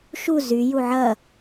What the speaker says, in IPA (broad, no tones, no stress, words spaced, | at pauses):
ʃu zyju ʕɐ